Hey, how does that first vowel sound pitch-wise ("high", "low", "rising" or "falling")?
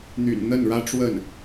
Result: low